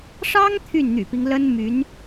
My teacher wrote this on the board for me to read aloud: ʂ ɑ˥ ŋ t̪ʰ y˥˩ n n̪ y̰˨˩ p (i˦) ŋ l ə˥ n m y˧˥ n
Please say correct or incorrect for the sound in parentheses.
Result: correct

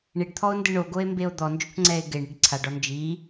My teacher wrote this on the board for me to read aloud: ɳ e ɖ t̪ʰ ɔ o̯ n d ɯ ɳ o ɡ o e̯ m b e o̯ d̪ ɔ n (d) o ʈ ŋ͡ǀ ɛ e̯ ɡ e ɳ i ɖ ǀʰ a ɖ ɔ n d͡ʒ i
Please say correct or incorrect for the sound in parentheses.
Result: incorrect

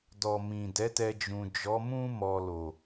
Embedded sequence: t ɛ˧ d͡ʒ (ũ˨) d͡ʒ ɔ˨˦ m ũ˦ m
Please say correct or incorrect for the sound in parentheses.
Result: correct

